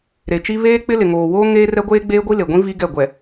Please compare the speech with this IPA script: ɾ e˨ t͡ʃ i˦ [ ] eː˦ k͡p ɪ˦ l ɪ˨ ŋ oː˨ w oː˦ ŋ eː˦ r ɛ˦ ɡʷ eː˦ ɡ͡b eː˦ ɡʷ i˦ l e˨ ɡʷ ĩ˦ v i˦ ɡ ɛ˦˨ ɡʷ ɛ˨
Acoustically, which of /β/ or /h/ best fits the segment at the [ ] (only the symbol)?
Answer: β